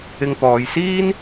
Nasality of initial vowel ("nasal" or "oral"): oral